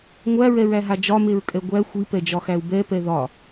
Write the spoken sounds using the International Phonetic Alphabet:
ŋʷæɹɛɹæɦa d͡ʒɒmeɹkʼɛ ɡʷæ xʷipɛd͡ʒɒxæu̯ bɛpɛ ðɒ

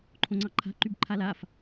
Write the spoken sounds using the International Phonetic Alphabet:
ǃʰõŋ͡ǀɑǃʰa̤ ǃybǃʰalaf

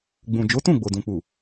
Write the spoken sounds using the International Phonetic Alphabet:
ɡ͡bũ˨d͡ʒo˨˦tũ˦˨ ɡ͡bo˨dũ˨k͡pu˨

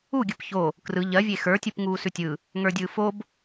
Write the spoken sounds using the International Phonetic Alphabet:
uɡʲɯp ço | krɯ ʎɜvʲe xə˞tʲup ŋuːsʉtʲɯ | ŋə˞dʲɯːfob

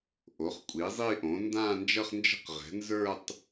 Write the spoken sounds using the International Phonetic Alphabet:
ʔo˩˥χkʷʼi˩˥ zˤi˥˧ʔõ˩˥ ndãː˥˧nd͡ʒʌ˥˧χnd͡ʒə̤˥˧q ʁɛ̤˩˥nzə˞˥˧tˤ

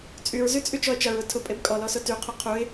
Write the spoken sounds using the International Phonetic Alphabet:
t͡sʼyɹzy t͡sʼyt͡ʃɔə̯t͡ʃɐɹʊ tʰʊ pʼebkʼɔlɔ sʊtyqʰʊ qʰuɪ̯

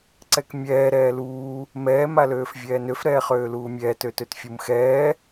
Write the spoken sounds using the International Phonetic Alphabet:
ǀɛkmʲɛː ɾɛːluː | mɛː maløːfvʲɛːnøf ɾɛːχøːluːmʲɛːt øtøtfʲumxɛː

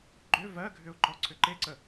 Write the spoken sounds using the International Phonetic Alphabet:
ɡ͡ǃʏ vɜɡʱʏʊ̯ ǃɔǀʰʏǃeǀə

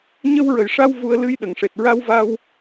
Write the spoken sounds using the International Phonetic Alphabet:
ɲə˧wɹə˨˩jʂa˧w vu˧ə̯lɨ˧jɗə˨˩˨ŋʂe˨˩t̚ ɹa˧wva˧w

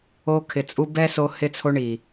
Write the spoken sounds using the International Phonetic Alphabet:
o˧kʰɪ˨ t͡sʼu˧bɛ˦so˧ hɪ˧t͡sʰo˧ɳi˨

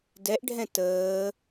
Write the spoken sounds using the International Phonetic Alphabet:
dɛʔɖʱɛ̃ təː

